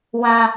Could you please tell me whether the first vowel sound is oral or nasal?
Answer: nasal